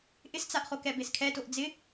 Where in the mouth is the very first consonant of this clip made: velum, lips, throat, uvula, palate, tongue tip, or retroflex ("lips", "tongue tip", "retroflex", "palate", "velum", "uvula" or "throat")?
throat